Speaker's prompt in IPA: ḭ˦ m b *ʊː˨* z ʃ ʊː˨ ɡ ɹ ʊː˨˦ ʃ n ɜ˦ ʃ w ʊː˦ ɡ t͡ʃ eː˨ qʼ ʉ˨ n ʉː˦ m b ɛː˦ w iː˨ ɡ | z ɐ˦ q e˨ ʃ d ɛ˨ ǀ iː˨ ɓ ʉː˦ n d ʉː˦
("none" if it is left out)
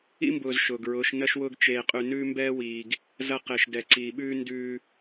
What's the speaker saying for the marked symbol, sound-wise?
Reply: ʊː˨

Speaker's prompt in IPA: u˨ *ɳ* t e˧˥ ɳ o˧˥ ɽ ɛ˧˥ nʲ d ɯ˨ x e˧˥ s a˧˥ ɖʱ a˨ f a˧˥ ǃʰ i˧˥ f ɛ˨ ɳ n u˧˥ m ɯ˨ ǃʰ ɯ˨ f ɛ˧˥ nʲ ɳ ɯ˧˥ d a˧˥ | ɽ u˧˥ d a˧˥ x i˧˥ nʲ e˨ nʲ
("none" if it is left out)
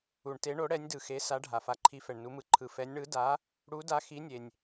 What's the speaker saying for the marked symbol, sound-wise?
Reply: ɳ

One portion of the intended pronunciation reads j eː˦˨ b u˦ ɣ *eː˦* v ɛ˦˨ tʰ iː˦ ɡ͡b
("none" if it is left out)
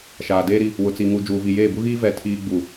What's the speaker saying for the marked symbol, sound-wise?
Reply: iː˦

